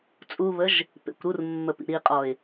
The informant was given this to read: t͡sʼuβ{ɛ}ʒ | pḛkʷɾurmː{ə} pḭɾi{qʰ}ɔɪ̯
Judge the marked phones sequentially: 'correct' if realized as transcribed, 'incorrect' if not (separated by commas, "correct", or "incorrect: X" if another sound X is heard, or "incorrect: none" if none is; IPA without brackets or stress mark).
incorrect: ə, correct, incorrect: qʼ